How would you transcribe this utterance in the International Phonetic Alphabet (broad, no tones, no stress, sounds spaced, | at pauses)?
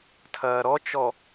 tʰ ɐː ɾ ɔ t͡ʃ ɔ